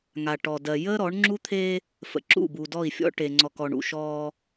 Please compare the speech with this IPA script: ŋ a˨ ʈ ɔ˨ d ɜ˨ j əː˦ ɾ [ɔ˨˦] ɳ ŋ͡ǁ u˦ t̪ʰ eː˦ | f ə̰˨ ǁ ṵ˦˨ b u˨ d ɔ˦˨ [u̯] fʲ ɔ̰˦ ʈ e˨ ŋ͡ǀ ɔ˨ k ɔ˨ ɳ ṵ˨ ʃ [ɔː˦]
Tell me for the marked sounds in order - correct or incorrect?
correct, incorrect: i̯, correct

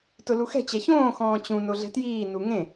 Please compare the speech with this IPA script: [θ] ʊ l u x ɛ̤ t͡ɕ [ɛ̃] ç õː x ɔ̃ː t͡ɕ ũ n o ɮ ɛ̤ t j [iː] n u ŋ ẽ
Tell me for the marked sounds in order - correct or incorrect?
incorrect: t, incorrect: ɛ, correct

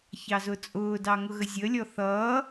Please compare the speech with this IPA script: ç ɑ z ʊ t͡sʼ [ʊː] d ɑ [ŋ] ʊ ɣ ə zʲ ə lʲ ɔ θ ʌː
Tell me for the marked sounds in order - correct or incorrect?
correct, correct

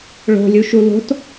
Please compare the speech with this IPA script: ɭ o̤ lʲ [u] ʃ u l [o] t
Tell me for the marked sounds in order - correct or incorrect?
correct, incorrect: o̤

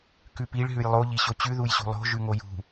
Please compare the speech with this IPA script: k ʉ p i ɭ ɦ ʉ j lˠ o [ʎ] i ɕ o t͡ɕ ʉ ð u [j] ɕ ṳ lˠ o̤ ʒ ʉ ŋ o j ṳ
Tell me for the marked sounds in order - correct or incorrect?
correct, correct

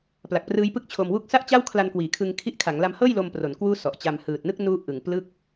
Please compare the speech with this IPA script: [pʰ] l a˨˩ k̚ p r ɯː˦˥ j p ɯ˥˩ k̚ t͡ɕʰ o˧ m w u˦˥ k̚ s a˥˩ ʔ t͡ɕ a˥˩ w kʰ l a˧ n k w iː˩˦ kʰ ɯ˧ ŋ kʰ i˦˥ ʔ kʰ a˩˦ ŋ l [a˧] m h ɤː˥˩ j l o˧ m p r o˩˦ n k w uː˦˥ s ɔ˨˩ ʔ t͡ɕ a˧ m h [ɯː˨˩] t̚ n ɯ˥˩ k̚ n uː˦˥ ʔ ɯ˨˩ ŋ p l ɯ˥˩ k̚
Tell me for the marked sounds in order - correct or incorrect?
incorrect: p, correct, correct

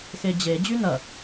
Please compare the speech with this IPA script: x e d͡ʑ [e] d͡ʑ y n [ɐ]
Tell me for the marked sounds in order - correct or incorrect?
correct, correct

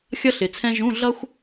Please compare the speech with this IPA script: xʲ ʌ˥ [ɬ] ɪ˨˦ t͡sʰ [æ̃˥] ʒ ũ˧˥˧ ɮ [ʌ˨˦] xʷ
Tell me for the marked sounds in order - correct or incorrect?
correct, incorrect: ɛ̃˥, incorrect: ʌ˥

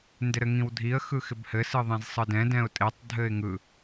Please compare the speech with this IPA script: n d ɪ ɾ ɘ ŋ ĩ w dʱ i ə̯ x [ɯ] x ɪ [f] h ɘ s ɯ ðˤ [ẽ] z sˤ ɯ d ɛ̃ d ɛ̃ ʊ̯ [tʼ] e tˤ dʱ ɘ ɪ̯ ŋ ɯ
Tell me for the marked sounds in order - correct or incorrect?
correct, incorrect: b, correct, correct

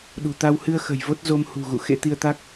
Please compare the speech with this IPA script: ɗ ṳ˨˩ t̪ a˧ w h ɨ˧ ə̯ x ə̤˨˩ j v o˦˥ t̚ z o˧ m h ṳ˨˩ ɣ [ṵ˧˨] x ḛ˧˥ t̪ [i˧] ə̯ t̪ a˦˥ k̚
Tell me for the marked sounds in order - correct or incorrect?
correct, correct

